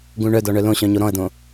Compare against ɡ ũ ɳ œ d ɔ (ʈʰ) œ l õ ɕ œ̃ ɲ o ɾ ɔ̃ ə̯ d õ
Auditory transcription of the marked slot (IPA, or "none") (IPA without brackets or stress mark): ɳ